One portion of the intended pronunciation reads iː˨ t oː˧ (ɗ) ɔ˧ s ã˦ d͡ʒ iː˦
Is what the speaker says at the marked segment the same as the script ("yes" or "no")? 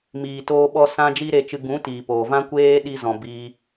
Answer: no